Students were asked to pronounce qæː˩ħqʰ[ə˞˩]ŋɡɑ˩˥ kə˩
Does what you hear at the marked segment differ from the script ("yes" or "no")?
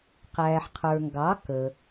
no